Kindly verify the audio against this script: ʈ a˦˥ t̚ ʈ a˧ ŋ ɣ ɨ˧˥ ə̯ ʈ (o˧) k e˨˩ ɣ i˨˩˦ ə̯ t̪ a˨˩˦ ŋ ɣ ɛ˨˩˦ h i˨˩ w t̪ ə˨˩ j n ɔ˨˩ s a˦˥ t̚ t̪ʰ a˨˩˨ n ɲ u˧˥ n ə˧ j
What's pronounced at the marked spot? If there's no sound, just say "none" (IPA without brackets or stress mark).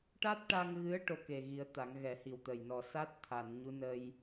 o˧